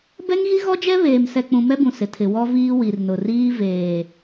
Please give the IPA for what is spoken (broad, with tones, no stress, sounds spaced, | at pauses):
b ɛ˦ ŋ ɣ i˦ ɣ ɔ˦ d͡ʒ ɛ˦ β eː˨ m s ɛ˨ k͡p ũ˨ m ɛ˦ b ũ˨ s ɪ˨ tʰ ɪ˨ w ɔ˦ v iː˦ w i˨ r n ʊ˨ r iː˦ v eː˨